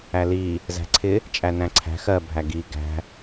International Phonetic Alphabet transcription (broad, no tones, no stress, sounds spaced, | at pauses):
æ l i | z æ̤ ǀʰ ɪ | t͡ʃʼ æ n æ̃ ǀʰ æ̤ x ɜ bʱ æ ɡ i ɡ æ̤